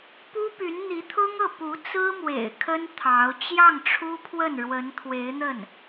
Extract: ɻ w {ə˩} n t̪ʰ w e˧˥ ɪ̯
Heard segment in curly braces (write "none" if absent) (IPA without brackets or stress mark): ə˧˥